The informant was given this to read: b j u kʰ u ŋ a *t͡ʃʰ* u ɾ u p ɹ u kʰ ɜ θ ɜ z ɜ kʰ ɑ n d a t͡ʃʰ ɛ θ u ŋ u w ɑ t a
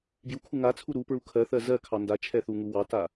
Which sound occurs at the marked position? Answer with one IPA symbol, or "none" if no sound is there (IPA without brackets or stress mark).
t͡sʰ